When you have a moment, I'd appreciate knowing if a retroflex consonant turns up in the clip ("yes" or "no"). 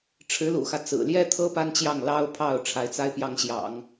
yes